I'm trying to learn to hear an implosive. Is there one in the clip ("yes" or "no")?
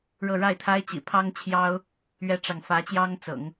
no